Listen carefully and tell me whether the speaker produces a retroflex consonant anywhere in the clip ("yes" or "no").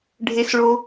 yes